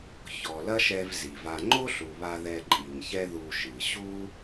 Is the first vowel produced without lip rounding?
no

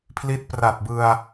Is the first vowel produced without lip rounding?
yes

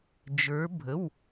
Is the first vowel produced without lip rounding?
yes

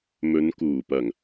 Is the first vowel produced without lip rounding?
no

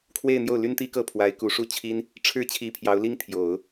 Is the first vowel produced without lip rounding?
yes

